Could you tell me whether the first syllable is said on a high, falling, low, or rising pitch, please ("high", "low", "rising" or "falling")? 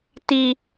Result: high